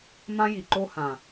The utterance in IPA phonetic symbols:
m ã˦ j i˨ ǃ o˦ h ã˨

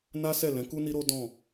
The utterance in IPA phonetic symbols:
n a˦ s ɛ˦˨ l ɛ̃˨˦ k u˦ n i˦ ɾ o˦ d ɔ̃˦˨

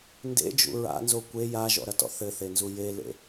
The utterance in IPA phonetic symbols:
n d ḛ d͡ʒ ṵ ɹ a̰ n z o kʷ e j a ʒ ɔ̰ ɾ ɐ t ɔ̰ θ ɘ θ e n z u j e l ḛ

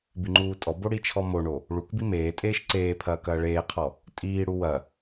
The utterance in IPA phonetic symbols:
b i ŋ͡ǃ uː tʼ ɔ b o ɽ i t͡ʃʰ ɔ m o ɳ o | ɭ u k b i m eː tʼ eː ʃ ǀ eː pʰ ɐː k ɐː ɭ eː qʰ ɔ | tʼ iː ɽ u w ɐ

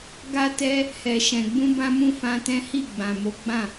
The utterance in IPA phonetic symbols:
ɡ a˧ t ɛ˧ | h ɛ˨ ʃ ɛ̃˨ ɡ͡b ũ˧ b ã˧ m ũ˧ f ã˧ t ɛ̃˦ h i˦˨ ɡ͡b ã˨ m o˨˦ ɡ͡b ã˦˨

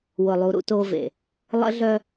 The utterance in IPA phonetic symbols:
w ʊ˨ lˠ u˨ ɾ ṵ˦ t o˦ v ḛ˨ | lˠ ə̰˦ ɮ œ˦

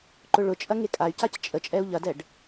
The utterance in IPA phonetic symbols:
ǃ ʊ ɭ ʊ t͡ʃʼ ɐ ŋ e kʼ a y̯ c a c t͡ʃʼ ə t͡ʃʼ ɛ u̯ ʎ ɐ d ɛ ɖ

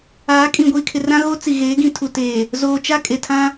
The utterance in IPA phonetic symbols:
aː˨˦ kʼ ĩ˨ ɡʷ iː˨ kʰ ɪ˨ r ã˦ ɣ o˦ t͡s i˨ ɣ eː˨˦ ɡ ĩ˨ tʰ u˨ t eː˨ | z oː˨ t͡ʃ a˦ kʼ e˨ tʰ ã˦

